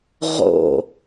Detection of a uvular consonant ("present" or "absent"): present